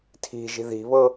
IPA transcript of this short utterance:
tʰ i̤ ʒ i̤ ð i̤ β ɤ

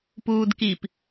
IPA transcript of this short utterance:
p uː d k i p

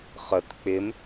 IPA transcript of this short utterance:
χ ə t k͡p ɪ m

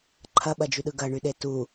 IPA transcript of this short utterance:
ǃʰ ɐ ɓ ɐ d͡ʒ y ɗ ɯ ɡ ɐ ɳ y ɗ e t u

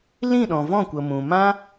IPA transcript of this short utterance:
l ĩ˦˨ ɗ ɔ̃˨ v ɔ̃˦˨ kʷ ə˨ m ũ˨ m ã˦

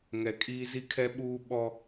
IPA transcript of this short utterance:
ŋ ɛ˨ kʼ iː˦ z i˦ kʰ ɛ˦ ɓ uː˦ ɓ ɔ˦

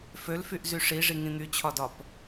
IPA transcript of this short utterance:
f ø l f y ʔ z y ʂ i ʐ i ŋ ĩ n̪ y t͡ɕʰ ɒ d ɒ p

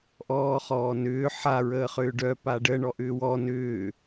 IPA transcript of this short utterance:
ʔ ɔː χ ɔː n ʏː ħ a ɹ əː χ ʏː ɖ œ p a ɖ ə ɳ ɔ ʔ ʏː w ɔ n ʏː

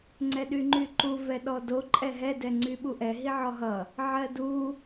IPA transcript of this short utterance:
ŋ͡ǀ ɛ ɗ y ŋ͡ǃ y ǃ u v ɛ ɗ ɔ d o ǃʼ ɛ ɦ ɛ d ɛ ŋ͡ǀ y ɓ u ʔ ɛ ɦ i ʕ ɔ ɦ ʌ | ʕ ɜ d u

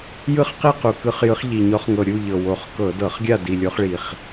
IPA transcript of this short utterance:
j ɯ˥˨ χ q i˥˨ q u˨˩ k ɯ˧˩˧ χ j ɯ˨˦ χ ʎ i˨˩ ɲ ɔ˨˦ χ ŋ ɤ˨˩ ɾʲ u˥˨ ʎ ɤ˨˩ w o˨˩ χ k ɤ˧˩˧ d ɤ˧˩˧ χ ɡʲ a˥˨ d i˨˩ lʲ o˨˦ χ ɭ i˨˩ χ

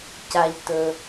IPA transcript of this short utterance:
c a˩ ʎ t ɵ˩

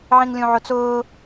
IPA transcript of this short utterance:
ʕ ĩ ŋ lʲ ũ ʕ ʊ t͡s ʊː

